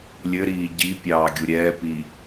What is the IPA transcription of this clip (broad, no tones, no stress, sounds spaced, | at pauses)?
lʲ ɘ ɾ iː ɟ i pʲ ɑː ɡʲ u ɾʲ ɛː p i